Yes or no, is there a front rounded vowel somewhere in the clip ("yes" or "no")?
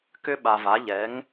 yes